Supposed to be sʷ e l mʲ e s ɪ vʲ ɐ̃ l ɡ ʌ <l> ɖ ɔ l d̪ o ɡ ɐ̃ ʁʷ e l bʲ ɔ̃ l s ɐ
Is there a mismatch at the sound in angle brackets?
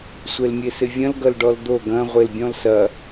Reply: no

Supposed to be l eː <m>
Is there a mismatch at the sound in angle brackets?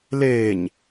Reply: yes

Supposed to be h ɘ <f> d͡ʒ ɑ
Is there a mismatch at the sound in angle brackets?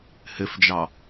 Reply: no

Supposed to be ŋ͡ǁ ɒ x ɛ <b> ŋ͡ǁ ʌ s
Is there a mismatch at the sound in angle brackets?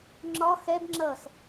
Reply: no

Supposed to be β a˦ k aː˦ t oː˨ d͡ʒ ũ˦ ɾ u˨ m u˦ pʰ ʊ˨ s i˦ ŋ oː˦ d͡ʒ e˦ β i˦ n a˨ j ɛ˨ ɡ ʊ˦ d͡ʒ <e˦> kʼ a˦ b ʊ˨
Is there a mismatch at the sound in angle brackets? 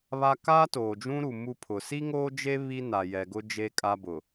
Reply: no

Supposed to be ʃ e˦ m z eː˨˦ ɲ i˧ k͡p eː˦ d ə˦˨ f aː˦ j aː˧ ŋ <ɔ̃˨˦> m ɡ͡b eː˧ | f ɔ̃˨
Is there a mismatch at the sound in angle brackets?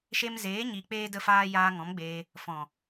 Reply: no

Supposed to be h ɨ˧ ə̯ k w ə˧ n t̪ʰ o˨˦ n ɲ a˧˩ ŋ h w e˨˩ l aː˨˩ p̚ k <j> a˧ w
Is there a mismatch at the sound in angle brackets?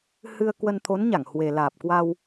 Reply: yes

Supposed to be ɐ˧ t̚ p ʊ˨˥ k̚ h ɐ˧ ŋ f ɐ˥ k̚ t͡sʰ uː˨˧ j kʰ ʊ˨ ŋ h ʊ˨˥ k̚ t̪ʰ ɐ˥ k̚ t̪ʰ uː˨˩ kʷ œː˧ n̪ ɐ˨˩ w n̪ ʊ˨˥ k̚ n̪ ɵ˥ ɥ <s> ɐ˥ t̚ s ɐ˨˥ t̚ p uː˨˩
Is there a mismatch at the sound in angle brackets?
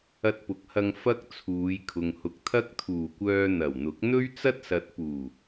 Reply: yes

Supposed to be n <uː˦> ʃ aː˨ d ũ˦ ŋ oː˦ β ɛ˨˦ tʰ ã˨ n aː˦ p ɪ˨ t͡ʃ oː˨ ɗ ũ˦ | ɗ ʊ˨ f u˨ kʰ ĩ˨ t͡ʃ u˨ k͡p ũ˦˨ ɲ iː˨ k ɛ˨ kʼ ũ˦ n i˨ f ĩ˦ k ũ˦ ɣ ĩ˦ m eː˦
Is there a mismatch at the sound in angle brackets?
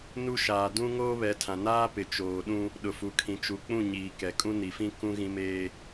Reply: yes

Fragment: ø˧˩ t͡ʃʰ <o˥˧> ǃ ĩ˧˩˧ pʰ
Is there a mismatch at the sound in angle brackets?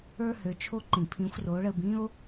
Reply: no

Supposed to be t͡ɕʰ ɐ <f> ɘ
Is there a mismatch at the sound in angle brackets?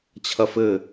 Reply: no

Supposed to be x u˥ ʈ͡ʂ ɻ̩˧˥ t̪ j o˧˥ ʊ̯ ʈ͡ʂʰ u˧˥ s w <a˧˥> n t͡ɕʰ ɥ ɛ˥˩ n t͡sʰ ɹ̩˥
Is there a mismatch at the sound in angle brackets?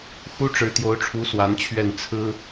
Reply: no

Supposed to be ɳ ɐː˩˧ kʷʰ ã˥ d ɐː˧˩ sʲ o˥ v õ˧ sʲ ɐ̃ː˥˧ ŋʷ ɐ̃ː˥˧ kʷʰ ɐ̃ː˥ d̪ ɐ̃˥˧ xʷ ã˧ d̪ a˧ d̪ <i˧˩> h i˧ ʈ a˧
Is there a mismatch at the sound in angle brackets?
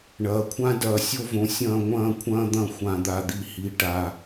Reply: yes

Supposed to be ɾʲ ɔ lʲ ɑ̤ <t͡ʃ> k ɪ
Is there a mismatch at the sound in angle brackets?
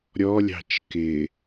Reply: no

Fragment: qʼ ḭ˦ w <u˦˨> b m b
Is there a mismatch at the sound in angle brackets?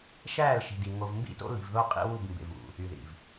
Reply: no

